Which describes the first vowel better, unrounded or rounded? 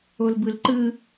rounded